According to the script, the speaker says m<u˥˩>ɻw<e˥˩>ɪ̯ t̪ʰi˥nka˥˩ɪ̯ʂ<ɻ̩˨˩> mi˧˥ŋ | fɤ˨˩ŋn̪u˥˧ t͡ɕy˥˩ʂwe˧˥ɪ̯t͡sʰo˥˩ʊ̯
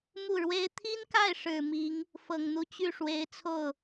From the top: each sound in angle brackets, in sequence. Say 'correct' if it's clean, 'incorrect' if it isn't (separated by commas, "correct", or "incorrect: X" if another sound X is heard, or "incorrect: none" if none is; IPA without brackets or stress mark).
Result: correct, incorrect: e˥, correct